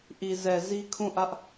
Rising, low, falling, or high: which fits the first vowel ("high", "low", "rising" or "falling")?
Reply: low